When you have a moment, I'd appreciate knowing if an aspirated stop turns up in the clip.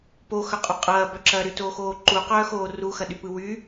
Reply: no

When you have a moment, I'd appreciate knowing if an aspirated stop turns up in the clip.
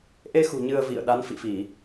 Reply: no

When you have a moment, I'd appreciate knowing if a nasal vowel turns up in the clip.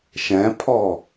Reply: yes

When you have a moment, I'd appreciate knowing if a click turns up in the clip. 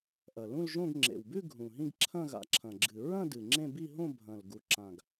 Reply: yes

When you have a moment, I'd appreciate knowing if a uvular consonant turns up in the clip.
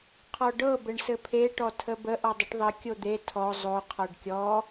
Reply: yes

